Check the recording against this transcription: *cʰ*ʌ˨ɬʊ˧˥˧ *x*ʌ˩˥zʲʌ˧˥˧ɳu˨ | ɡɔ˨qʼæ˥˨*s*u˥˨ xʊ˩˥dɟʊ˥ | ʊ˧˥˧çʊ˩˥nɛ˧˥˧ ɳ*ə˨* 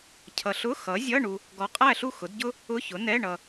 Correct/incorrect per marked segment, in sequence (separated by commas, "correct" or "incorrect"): correct, correct, incorrect, incorrect